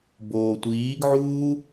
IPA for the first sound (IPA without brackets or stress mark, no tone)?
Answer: b